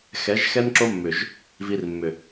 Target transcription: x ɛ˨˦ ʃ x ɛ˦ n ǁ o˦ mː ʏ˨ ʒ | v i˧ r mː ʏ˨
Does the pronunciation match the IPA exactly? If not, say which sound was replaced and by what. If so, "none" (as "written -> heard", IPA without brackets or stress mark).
ʃ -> ʒ